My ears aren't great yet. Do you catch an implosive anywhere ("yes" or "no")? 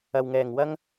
no